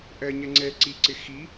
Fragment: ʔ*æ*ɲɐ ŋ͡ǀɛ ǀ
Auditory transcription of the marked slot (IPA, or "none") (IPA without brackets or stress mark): ɜ